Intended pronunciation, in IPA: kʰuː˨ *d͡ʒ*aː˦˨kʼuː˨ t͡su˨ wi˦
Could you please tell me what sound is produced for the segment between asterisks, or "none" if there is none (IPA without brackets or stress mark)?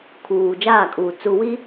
d͡ʒ